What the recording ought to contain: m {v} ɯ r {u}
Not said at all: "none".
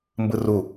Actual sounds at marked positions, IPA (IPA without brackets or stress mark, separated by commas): b, u